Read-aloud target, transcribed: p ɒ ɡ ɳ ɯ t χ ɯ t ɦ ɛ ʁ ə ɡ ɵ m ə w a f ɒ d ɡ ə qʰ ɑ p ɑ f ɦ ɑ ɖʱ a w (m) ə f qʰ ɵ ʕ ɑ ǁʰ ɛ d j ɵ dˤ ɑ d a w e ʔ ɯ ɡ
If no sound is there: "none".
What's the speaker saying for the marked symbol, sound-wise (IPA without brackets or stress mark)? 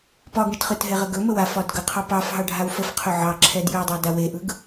f